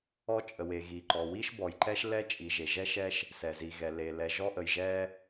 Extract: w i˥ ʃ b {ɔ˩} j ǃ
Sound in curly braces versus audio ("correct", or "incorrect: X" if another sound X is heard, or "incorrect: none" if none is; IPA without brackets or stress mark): correct